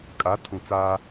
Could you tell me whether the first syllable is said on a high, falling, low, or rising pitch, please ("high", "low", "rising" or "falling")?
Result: rising